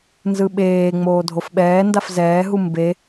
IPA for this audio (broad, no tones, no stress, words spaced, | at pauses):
nzɯɓeː ŋ͡moːdʱofɓɛː ndafzɛːɦu mbe